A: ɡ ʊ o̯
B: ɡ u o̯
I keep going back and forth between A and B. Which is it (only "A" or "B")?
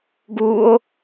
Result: B